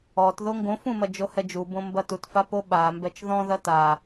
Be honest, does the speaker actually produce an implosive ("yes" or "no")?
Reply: yes